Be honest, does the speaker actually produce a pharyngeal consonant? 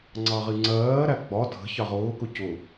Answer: no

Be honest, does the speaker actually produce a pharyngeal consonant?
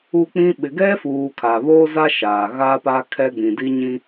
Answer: no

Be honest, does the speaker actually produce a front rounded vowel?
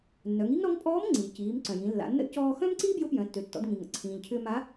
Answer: yes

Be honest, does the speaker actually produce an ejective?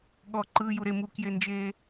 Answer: no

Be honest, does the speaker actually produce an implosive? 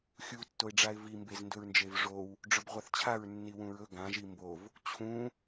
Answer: no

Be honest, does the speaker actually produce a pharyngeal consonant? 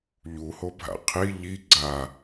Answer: no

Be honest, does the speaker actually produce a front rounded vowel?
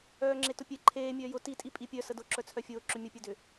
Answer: yes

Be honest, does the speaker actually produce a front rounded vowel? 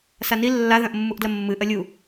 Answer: no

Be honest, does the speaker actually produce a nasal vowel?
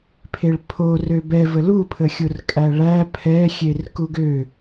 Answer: no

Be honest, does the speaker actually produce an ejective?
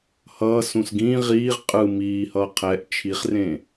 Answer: yes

